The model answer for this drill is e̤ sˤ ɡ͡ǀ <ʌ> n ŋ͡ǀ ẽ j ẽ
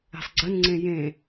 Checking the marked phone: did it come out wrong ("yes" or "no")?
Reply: yes